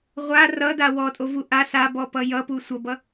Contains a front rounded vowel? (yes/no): no